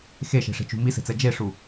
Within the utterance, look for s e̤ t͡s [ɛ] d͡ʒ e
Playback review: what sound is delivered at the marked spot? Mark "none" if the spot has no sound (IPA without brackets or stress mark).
ɛ